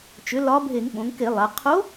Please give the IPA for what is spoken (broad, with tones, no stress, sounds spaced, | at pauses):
t͡ʃ ʏ˩˥ l ɒ˧˥ bʱ e˧˩˧ ŋ ɓ õ˩˧ ŋ k e˧˩˧ lˠ a˩˧ qʰ o˧˥